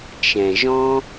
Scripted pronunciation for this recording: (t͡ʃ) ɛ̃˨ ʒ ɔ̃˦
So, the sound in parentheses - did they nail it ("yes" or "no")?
yes